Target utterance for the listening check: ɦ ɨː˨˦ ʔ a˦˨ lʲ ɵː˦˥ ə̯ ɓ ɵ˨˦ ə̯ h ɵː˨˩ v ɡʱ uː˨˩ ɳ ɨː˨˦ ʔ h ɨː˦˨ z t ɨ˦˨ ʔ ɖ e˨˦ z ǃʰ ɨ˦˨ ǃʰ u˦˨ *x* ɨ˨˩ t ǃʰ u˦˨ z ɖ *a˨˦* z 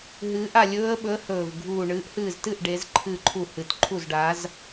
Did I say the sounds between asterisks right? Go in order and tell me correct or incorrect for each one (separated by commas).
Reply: incorrect, correct